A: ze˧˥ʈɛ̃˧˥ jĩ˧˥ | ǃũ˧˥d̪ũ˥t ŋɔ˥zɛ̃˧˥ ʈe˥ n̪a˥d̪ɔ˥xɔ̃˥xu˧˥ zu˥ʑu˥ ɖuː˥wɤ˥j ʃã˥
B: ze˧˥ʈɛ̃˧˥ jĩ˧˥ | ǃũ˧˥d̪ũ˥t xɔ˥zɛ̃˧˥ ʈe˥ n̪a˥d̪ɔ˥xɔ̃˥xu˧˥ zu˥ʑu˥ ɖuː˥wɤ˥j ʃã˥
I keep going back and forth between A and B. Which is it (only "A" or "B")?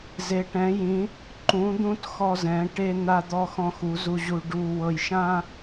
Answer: B